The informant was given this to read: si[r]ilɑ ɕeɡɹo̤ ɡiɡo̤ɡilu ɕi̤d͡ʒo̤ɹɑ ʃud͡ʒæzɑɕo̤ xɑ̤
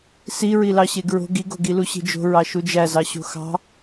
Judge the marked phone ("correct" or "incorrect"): incorrect